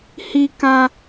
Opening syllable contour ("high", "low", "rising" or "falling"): high